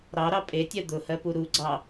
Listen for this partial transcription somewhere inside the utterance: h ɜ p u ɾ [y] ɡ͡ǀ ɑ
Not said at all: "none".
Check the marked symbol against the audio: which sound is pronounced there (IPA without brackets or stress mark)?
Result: u